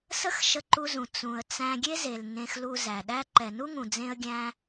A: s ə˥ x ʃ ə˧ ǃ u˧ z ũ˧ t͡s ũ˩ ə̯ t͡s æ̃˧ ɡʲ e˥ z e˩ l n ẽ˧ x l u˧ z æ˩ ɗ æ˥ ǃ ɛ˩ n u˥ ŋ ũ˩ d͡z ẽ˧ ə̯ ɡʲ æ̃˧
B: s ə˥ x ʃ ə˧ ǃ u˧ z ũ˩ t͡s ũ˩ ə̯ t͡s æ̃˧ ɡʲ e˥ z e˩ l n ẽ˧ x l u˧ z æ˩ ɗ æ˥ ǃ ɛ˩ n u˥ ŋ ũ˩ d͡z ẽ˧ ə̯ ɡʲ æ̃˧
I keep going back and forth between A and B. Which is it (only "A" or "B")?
B